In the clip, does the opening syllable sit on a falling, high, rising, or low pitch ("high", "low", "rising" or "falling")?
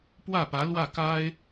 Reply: falling